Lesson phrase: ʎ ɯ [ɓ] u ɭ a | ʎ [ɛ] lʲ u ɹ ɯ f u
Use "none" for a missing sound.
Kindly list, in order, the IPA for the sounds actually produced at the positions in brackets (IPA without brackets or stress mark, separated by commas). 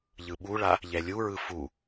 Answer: ɓ, ɛ